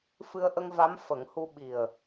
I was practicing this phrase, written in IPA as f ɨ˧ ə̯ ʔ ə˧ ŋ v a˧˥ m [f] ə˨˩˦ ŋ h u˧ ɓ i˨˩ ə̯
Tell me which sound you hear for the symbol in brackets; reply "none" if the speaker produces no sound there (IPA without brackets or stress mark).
f